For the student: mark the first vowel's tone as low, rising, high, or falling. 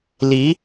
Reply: rising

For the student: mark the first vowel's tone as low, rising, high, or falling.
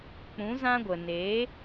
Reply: rising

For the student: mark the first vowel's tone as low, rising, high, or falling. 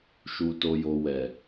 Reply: low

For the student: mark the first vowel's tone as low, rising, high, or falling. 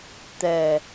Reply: low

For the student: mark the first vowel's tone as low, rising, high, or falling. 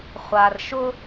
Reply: low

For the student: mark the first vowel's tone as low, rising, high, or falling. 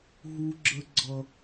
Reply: high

